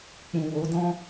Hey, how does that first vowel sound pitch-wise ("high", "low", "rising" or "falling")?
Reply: low